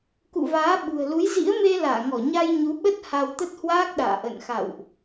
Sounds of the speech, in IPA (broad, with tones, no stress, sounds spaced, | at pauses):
k ṵ˧˨ v aː˨˦ ɓ ṳ˨˩ ə̯ l u˨˦ j z ḭ˧˥ ə̯ m e˧ l aː˧˩ ŋ ɔ˧˩ ɲ a˧ j ɲ u˨˦ ɓ ə˦˥ t̚ h a˧ w t̪ ə˦˥ t̚ h w aː˦˥ k̚ ɗ a̰ː˧˨ ʔ ə̰˧˨ n x a̰˧˨ w ʔ